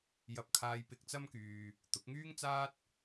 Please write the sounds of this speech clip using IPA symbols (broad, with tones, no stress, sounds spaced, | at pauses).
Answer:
j ɐ˥ p̚ kʰ aː˥ j p ɪ˧ k̚ t͡s ɐ˥ m k yː˧ | t̪ ʊ˨˥ k̚ ŋ yː˥ ŋ t͡s aː˥ t̚